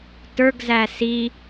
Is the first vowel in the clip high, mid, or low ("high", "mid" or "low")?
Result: mid